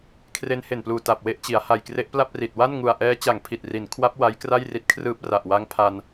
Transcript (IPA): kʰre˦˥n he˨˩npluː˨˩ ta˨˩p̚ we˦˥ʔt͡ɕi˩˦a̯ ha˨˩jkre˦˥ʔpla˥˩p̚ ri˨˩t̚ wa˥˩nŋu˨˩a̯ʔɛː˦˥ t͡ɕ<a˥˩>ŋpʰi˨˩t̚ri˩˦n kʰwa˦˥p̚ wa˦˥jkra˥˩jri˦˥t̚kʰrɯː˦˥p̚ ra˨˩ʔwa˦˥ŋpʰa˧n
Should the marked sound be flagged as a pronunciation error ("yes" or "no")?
yes